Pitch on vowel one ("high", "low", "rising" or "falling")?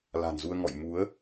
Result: low